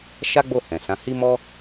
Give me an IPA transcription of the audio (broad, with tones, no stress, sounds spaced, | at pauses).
ʃ a˦ ɡ͡b o˦˨ h ɛ̃˨ s ã˨˦ h i˦ m ɔ˦